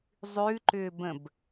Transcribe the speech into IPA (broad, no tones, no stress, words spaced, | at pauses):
zˤʉǃʏːbə̃b